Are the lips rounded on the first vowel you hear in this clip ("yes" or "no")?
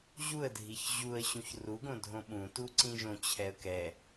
yes